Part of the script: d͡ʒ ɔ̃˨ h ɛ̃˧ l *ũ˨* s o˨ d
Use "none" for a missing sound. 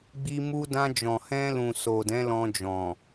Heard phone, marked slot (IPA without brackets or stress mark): ũ˨